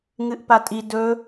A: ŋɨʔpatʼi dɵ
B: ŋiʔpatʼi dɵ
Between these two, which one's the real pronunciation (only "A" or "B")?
A